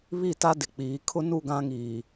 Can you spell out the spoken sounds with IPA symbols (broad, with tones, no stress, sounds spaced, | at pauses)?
β i˦˨ t a˦ d ɪ˨ k͡p iː˨˦ kʰ ʊ˦ n u˦˨ ɡ ã˦ ŋ iː˨